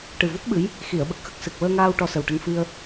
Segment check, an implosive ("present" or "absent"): present